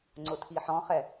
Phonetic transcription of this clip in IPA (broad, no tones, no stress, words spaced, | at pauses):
ŋ͡ǀʊtʰiħɔ̃χɛ